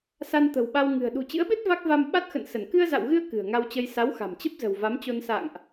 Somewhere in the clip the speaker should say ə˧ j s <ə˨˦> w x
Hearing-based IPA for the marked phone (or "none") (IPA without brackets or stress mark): a˨˦